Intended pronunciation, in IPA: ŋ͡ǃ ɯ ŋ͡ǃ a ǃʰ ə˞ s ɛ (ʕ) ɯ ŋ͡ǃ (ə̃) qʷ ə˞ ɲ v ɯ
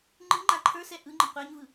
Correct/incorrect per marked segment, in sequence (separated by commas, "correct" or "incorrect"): incorrect, correct